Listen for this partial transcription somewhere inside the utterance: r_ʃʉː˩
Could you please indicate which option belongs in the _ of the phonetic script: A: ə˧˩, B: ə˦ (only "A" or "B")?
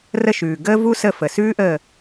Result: A